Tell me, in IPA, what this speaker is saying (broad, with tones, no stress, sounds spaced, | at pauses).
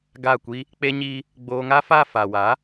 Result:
ɡ a˦˨ kʷ i˦ | k͡p e˦ ɲ iː˦ | ɡ͡b oː˧ ŋ a˦ f a˦˨ f a˨ w a˨˦